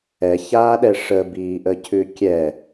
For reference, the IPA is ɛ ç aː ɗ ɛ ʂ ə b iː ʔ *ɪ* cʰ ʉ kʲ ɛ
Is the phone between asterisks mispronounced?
yes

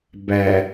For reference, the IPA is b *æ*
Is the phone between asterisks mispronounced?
no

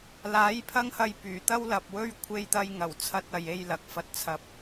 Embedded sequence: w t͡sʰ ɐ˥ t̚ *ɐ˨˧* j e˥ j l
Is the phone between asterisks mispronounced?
no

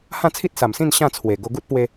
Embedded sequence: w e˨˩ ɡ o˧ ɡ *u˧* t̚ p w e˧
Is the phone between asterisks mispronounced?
yes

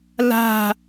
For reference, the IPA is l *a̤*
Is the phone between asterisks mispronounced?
no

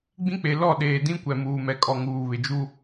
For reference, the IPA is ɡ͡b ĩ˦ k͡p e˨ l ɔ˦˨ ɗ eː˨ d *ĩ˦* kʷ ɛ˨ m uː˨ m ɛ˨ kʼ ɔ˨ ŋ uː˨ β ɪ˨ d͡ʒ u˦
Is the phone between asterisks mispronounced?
no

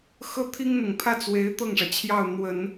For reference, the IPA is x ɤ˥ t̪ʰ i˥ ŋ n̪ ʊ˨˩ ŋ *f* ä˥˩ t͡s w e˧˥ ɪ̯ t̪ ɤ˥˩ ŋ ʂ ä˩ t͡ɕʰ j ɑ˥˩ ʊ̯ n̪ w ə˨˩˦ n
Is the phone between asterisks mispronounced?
yes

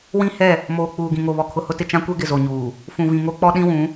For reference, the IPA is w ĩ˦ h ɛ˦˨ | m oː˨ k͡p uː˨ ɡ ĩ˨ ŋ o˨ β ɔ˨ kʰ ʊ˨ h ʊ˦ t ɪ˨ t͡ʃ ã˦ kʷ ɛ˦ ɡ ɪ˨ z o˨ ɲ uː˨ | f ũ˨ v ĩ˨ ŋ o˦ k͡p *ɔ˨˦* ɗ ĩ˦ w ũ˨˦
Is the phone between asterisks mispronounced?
yes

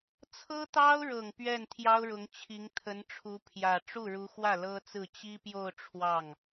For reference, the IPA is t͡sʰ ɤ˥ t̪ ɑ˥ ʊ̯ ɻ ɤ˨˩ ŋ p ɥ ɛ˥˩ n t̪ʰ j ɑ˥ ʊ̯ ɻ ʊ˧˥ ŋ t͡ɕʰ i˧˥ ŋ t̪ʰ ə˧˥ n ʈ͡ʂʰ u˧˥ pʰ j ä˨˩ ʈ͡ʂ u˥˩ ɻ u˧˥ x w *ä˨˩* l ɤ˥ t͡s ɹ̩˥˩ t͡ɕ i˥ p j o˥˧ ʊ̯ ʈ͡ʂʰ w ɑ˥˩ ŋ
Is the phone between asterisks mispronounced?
yes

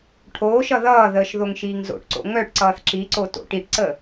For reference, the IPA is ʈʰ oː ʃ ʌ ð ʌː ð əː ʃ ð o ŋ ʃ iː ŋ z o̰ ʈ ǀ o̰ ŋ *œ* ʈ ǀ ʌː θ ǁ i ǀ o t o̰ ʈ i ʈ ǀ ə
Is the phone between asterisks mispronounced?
no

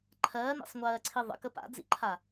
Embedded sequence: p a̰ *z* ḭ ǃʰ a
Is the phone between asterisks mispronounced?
yes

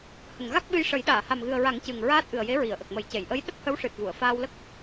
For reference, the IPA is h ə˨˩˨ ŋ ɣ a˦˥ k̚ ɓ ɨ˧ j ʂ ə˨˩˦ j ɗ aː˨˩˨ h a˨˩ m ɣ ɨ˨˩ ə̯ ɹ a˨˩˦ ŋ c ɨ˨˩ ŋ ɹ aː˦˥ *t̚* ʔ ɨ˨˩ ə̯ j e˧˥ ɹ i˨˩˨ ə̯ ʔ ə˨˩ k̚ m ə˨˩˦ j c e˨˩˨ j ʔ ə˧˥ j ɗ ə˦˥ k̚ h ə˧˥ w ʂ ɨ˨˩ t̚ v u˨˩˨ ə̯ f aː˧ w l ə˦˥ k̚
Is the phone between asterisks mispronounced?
no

